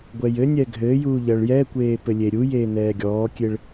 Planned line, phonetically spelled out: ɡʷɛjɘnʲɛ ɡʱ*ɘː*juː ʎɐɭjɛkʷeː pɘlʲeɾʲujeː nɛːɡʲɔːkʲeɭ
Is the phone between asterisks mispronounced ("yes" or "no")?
no